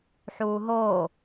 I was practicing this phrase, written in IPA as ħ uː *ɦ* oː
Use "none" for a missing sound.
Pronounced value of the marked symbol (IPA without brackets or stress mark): ɦ